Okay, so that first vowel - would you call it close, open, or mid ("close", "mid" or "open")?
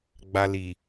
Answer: open